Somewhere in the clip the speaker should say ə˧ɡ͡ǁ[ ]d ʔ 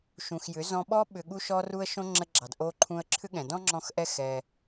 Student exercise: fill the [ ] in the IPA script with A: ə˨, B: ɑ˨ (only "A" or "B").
B